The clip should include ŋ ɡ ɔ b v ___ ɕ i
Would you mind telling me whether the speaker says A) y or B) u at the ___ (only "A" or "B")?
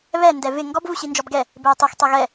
B